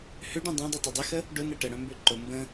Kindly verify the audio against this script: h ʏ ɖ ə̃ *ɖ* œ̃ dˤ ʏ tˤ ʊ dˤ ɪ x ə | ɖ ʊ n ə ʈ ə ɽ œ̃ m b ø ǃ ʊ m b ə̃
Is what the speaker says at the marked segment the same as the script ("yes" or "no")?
no